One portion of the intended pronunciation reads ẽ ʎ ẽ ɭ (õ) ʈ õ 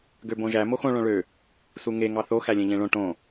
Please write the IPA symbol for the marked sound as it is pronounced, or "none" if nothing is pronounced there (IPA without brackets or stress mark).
õ